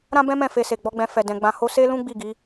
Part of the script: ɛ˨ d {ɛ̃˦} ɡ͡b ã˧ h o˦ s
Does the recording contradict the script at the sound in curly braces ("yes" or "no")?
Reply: yes